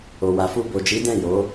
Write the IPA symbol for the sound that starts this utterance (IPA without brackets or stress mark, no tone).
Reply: o